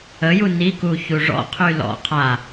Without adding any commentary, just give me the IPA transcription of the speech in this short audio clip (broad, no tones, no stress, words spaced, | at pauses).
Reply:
əju niku çuʐɔ̰ qʰylɔ̰ qʰa